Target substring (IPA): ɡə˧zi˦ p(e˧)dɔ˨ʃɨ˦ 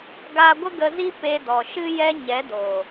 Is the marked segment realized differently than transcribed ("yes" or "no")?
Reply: no